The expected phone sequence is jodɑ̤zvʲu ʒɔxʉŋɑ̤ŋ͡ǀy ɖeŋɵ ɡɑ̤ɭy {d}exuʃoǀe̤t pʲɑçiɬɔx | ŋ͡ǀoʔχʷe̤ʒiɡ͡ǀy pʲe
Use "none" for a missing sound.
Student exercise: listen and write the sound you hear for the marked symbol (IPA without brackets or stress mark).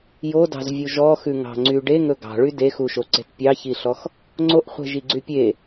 d